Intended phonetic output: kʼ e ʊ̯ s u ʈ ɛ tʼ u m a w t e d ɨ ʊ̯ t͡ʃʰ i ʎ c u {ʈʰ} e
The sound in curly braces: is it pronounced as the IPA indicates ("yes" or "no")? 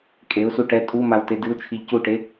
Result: no